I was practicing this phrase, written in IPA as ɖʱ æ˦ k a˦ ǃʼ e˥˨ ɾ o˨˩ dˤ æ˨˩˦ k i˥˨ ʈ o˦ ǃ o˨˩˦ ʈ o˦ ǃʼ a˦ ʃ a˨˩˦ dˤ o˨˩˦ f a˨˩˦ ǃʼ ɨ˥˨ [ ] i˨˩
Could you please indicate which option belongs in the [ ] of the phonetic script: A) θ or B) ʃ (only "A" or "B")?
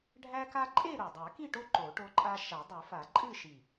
B